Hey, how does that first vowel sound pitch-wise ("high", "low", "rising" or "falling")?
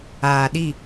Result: low